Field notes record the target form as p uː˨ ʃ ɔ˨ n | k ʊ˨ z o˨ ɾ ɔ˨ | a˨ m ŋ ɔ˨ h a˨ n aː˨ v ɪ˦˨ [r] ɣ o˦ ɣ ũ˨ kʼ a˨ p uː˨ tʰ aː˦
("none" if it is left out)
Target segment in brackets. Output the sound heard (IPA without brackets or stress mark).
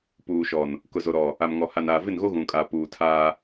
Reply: n